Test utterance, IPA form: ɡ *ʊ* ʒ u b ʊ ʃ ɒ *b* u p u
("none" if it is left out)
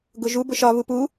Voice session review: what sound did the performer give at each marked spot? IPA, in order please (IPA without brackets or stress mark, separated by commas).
ʊ, β